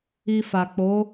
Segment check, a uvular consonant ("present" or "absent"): absent